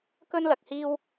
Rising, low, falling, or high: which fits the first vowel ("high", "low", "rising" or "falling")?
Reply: high